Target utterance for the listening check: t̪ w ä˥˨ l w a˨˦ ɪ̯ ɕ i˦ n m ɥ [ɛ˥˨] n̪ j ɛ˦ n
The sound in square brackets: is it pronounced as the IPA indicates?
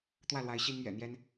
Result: no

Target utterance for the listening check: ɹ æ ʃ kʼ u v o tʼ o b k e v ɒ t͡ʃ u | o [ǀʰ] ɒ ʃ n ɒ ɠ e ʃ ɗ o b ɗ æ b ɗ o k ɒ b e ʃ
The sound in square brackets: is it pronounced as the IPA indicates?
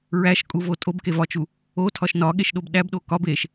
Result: no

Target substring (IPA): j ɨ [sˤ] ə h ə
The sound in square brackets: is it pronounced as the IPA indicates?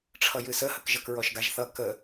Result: no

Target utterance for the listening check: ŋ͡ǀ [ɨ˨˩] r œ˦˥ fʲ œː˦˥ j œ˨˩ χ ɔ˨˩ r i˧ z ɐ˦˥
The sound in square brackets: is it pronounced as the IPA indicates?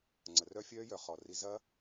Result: no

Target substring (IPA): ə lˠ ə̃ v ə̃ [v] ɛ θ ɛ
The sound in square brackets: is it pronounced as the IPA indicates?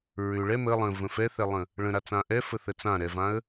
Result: no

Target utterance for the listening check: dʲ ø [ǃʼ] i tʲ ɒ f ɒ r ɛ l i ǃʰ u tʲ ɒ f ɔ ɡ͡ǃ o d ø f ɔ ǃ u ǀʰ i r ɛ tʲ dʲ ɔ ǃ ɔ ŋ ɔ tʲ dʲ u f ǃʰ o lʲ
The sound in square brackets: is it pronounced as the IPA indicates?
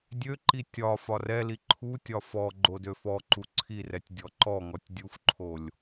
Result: no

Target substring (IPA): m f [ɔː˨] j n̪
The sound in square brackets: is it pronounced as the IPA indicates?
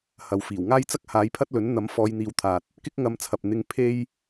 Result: no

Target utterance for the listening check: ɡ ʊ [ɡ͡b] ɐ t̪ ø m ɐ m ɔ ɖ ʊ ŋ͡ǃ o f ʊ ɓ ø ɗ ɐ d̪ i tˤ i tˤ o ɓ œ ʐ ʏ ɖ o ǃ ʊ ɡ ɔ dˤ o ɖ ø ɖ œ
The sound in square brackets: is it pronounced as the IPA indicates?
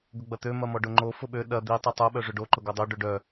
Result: yes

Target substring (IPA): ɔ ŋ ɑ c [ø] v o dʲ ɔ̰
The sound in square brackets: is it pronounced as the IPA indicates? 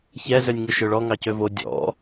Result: yes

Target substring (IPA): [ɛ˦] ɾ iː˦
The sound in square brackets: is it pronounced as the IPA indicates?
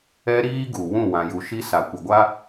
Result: yes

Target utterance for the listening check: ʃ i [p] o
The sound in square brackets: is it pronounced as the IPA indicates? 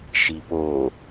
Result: yes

